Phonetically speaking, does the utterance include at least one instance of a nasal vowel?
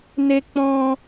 yes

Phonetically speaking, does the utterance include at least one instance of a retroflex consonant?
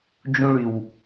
yes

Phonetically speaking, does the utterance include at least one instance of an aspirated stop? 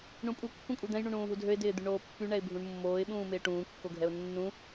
no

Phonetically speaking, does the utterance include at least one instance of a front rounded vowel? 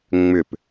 yes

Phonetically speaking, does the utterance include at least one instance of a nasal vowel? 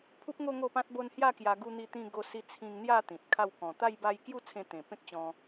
yes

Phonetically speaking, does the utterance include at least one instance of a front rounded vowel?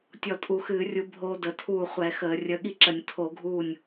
no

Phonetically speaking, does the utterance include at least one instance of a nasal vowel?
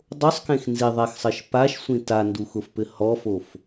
yes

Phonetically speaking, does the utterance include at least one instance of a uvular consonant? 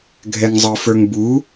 no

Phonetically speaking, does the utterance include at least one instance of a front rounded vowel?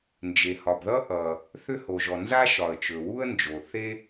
yes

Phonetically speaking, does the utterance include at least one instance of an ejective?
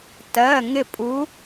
yes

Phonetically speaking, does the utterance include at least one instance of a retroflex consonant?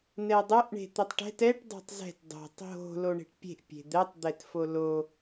yes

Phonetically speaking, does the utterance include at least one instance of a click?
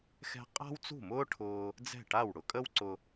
yes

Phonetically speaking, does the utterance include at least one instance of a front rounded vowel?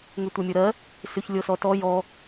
yes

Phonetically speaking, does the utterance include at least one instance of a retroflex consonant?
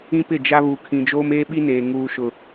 no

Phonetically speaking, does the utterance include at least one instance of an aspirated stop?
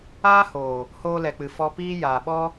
no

